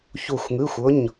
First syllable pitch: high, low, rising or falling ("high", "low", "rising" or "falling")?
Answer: falling